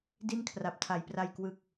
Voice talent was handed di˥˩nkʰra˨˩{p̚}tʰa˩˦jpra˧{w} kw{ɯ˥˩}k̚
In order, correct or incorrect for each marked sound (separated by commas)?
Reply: correct, incorrect, incorrect